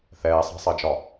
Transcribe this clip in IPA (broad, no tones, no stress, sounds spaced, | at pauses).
θ ɛː sˤ ɑ̤ sˤ ɜ d͡ʒ ɒ